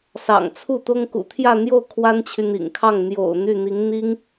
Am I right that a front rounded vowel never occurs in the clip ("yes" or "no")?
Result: no